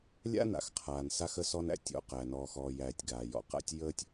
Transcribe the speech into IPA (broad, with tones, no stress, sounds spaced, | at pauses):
lʲ a̰˦ n a̰˩ x qʰ aː˩ n s a˦ x ə˦ s ɔ˦ n æ̰˦ tʲ ɔ̰˨ q æ˩ n ɔː˨ x ɔː˨ j æː˨ tʲ ɡ aː˩ j ɔ̰˨ q a̰˥ tʲ j əː˥ tʲ